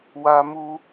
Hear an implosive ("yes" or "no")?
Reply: no